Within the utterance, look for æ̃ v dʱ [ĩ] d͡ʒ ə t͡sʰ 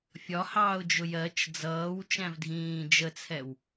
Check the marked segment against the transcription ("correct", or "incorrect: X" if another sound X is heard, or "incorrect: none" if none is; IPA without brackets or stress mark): incorrect: ĩː